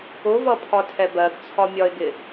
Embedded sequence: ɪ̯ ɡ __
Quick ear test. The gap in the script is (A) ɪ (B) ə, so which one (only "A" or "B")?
A